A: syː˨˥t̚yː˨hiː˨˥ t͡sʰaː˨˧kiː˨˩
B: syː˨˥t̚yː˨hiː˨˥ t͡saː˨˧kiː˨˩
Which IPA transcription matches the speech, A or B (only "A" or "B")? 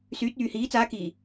B